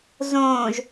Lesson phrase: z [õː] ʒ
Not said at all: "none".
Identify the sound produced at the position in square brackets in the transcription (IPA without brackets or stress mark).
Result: õː